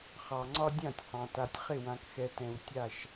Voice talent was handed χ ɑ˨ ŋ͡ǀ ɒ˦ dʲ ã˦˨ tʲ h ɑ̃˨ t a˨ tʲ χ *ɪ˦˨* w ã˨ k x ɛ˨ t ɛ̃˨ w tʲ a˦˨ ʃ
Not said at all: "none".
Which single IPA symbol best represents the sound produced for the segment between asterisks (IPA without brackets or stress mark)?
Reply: ɪ˦˨